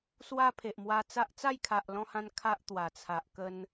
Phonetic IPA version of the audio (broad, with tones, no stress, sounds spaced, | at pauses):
s w a˦ pʰ e˨ ʔ m w a˧ t͡s a˦ ʔ t͡s a˥˧ j kʰ a˨ ʔ l ɔ̃˧ h ã˧ n kʰ a˦ ʔ t̪ w a˨˩ t͡sʰ a˨ ʔ k ə˧ n